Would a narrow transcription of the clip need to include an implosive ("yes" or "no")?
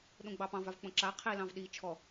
yes